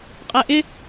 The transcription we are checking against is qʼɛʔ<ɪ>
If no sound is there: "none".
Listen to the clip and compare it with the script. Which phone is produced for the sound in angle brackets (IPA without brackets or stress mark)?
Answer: ɪ